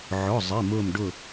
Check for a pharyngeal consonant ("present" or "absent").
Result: present